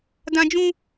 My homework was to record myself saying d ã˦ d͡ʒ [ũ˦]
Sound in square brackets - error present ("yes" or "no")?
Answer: no